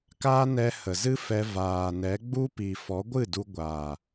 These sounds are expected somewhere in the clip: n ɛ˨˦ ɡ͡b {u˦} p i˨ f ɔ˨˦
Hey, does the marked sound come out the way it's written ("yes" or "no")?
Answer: yes